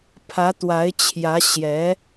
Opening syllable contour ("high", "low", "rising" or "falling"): rising